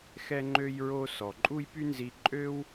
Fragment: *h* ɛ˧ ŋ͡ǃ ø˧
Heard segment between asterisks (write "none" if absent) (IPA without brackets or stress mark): x